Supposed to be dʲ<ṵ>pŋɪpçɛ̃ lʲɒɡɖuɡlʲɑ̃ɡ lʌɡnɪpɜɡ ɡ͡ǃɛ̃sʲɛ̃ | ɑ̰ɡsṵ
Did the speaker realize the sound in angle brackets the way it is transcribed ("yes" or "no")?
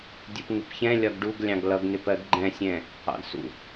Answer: no